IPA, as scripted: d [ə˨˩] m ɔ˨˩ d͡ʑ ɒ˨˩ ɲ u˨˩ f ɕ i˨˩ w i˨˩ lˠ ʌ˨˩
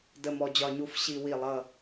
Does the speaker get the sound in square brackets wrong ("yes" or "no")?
no